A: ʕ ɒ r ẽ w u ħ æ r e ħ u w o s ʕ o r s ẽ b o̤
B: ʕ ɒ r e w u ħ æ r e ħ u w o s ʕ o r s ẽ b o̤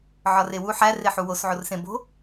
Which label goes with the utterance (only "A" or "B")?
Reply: B